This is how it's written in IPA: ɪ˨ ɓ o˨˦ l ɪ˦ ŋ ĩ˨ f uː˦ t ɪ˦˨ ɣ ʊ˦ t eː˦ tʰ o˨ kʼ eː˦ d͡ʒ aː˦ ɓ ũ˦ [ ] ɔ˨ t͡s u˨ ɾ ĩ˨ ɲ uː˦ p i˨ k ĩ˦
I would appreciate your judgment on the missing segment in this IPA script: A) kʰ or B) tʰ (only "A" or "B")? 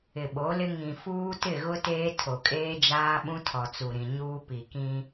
B